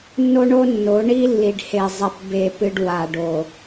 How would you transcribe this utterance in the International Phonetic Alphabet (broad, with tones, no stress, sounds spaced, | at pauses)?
nː o˦ ɳ o˦ nː o˨˦ ɳ i˦ lː i˨ ɖ h e˨ zˤ e˨ p b e˦˨ p ɨ˦ ɖ w a˨ ɖ o˨